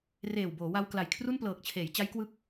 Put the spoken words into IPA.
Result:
reː˨˩wboː˩˦wa˧w kla˨˩jkʰru˥˩nplɤː˨˩k̚t͡ɕʰeː˩˦j t͡ɕa˦˥jkwɯ˦˥k̚

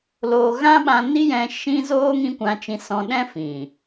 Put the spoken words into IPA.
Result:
loː˧ ɣã˦ɓã˧ni˦jɛ̃˧ ʃĩ˦ zoː˦ ŋĩ˦kʷã˧t͡ʃĩ˧ sɔ̃˧ɗɛ̃˦fĩ˨

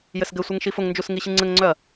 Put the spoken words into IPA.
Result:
jɘsɡɘsʷɘŋ ʃifʊŋnd͡ʒus ŋiɕɨŋ͡ǀɘŋŋ͡ǀœɐ̯

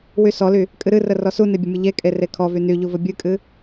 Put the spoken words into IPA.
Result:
wysɔly | kʼɨɾɨrə rɔsune bʲəmʲəʎekʼe rekʰɔvy nyʎu vəbʲɨkʼɨ

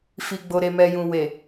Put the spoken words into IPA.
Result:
fi˨ɡ͡bo˨ ɾe˨mɛ˨jũ˨ we˨

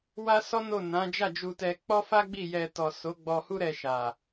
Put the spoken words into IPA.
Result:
wa˦sɔ˦no˦˨ nã˨˦ d͡ʒa˦˨d͡ʒu˧tɛ˧ k͡pɔ˦fa˦ɡ͡bi˦˨jɛ˧ tɔ˨ so˨˦ ɡ͡bɔ˧hu˦ ɾɛ˧ʃa˨

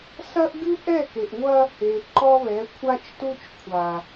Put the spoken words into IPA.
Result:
sɐ˦ʔɡɨ˦ ʔɛ˦˨ke˨ʔŋʷɐ˦ | e˨ ǃɔ˦βɛ˨˦kʷʰa˦t͡ʃtu˦t͡ʃ kʷʰa˨

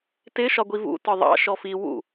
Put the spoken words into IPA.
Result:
tɪ ʃɒɡʷivṵ tɒðˤɑ̰ ʃɔfi wṵ

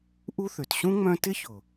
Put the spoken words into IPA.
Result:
ʔu˦θø˩t ɕũ˥ŋ͡mœ̃˦ tɪ˦çʊ˩

